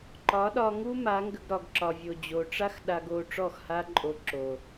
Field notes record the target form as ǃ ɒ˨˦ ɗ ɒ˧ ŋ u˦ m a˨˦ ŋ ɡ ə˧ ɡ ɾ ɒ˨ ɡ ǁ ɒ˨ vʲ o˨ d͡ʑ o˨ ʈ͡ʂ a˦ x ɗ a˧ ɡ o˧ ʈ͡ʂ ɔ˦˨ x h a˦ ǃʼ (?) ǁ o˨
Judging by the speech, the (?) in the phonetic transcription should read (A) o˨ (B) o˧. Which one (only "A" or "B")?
B